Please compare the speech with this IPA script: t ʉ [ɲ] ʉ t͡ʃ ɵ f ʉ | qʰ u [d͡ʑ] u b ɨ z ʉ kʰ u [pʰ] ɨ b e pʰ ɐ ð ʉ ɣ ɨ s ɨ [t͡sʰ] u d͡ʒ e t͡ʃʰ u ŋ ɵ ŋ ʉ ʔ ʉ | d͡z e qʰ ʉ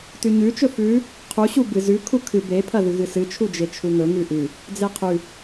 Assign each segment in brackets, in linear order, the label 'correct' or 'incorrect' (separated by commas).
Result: correct, incorrect, incorrect, incorrect